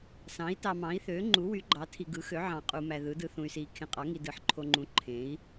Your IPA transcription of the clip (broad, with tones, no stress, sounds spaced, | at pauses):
s ɑ̃˩˥ i̯ t ɑ˨ m ɑ̃˩˥ i̯ θ øː˩˥ ŋ͡ǃ u˩˥ w y˩˥ ɡ͡ǃ ɑ˩˥ tʰ i˨ ɡ ɯ˩˥ x ø˩˥ ʕ ɑ̃˨ qʼ u˨ m æ˨ ð ɯ˩˥ d ɯ˨ θ ũ˨ y̯ s iː˨ kʰ ẽ˨ qʼ ɑ˩˥ ŋ i˨ d ɯ˩˥ ħ ǃʰ o˨ ŋ͡ǃ ũ˩˥ ǃʰ ẽ˩˥ i̯